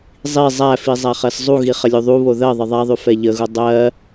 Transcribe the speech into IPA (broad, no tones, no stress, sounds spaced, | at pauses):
zˤ i zˤ æ f i zˤ æ χ ɜ s zˤ u ɣ i χ ə lʲ u ðˤ u β o ð ɜ ðˤ ə ðˤ æ ðˤ ʉ f ɛ ʎ ə ɣ u dˤ ɜ